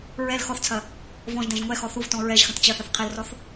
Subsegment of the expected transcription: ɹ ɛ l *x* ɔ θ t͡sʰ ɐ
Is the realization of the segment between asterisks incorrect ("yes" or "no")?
no